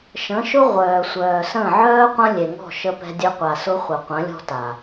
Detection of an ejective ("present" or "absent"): absent